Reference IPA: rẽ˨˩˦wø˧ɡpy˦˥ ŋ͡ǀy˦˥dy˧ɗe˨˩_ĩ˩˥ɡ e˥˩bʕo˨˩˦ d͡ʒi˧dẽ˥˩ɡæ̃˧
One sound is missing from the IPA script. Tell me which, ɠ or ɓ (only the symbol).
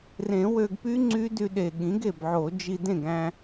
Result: ɠ